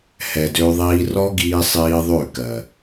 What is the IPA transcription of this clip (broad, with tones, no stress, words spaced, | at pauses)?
hɛ˨dø˧ðˤiː˧ rɔ˦ɡiː˧sˤiː˧ ðˤø˦˨ kɜ˨